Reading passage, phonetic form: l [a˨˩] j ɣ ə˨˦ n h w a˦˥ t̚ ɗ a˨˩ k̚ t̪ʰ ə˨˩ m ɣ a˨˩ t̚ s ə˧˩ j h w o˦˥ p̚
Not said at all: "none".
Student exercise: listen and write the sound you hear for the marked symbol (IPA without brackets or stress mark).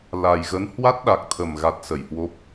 a˨˩